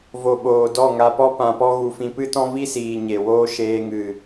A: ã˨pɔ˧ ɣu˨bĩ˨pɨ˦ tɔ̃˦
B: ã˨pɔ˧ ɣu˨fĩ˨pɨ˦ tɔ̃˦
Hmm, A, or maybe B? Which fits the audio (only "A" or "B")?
B